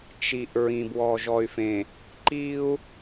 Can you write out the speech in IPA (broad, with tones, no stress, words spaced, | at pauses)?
t͡ʃi˨ʔ ɹĩ˨bwɔ˨ʒɔ˨y̯fẽ˨ | ǃi˦u̯